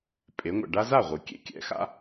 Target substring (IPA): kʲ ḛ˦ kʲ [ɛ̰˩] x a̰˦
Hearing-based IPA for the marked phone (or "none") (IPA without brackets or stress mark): ɛ̰˩